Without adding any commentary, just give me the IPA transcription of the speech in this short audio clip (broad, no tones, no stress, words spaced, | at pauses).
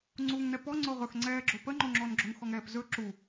ŋ͡ǀuːŋnɛpɔ ŋ͡ǀʊːʁɵx ŋ͡ǀɛːɡ͡ǁopə ŋ͡ǃoŋ͡ǁɔnɡ͡ǁʊŋ xɔŋɛːpzɵ ǁu